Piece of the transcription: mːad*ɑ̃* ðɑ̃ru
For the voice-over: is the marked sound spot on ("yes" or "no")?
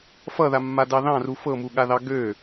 no